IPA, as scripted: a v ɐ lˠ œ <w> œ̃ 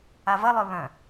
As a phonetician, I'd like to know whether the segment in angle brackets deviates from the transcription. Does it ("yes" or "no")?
yes